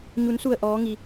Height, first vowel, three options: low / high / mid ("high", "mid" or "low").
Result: high